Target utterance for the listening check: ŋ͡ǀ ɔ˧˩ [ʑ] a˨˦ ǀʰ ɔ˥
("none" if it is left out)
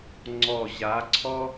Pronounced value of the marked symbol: ʑ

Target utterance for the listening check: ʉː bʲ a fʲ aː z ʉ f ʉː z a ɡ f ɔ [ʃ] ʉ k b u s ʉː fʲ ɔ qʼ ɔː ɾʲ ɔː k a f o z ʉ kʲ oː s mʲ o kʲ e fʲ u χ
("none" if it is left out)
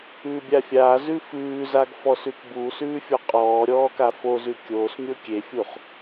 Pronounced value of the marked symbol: s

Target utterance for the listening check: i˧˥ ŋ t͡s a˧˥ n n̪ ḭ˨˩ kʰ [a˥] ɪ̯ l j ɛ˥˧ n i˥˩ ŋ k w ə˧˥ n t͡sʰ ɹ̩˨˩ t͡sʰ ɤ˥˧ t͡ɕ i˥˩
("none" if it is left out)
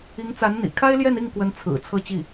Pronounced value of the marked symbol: a˥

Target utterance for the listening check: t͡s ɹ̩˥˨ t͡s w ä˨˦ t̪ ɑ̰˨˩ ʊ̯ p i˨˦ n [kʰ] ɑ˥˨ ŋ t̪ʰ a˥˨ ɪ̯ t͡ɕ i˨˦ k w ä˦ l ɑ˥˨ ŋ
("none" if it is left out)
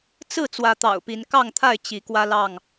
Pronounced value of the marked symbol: k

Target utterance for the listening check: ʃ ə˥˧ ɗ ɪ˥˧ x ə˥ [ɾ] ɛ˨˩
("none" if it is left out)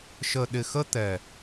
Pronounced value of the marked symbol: t̪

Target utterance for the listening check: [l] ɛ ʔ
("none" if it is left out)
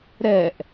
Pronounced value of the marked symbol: ɾ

